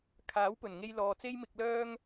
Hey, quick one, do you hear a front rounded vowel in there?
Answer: yes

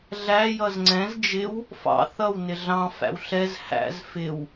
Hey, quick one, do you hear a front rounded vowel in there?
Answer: no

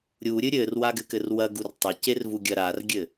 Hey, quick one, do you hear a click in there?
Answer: no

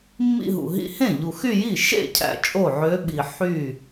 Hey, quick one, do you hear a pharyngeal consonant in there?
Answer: yes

